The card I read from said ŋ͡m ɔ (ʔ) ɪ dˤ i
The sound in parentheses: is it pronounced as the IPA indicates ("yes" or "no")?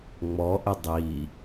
yes